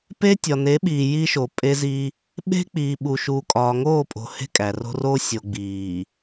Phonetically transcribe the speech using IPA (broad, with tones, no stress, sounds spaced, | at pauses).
p e˦ tʲ ɒ˨ n e˨˦ ɓ iː˨ j iː˦ ʃ o˨ pʼ e˦ z i˦ | ɓ e̤˦ k͡p iː˨ ɓ u˨ ʃ uː˨ kʼ ɒː˨ ŋ oː˦˨ pʼ o̤˨ h e̤˦ kʼ æ˨ r o̤˦ r oː˦ sʲ o˨ ɡ͡b iː˨